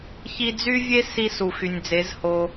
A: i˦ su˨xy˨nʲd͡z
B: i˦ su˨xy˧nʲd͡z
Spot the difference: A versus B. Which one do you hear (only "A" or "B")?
A